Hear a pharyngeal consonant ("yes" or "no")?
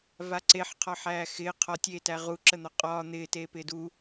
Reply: yes